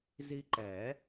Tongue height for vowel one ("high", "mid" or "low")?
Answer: high